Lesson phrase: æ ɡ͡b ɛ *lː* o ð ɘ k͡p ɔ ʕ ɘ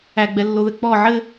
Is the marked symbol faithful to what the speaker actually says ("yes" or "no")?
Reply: yes